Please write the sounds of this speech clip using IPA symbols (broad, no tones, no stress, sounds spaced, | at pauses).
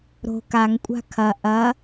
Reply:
ɾ o̤ k a ŋ kʷʼ a̤ kʰ ɐ ʔ ɐ